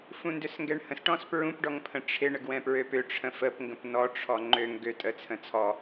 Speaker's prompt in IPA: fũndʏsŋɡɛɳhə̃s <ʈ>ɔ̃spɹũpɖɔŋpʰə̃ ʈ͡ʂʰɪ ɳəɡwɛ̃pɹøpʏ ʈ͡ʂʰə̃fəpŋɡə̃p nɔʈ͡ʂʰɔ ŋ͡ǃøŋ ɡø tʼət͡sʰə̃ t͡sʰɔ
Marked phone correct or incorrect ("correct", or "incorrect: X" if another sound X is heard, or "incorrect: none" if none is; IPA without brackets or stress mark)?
correct